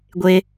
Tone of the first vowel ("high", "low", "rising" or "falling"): high